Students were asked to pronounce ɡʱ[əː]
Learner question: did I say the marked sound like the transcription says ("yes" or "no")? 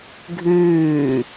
no